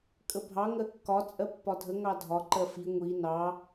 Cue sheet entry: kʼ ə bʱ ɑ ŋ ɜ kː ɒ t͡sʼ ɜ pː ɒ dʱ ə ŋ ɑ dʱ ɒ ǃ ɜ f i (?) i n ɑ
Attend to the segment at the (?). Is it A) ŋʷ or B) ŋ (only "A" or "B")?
A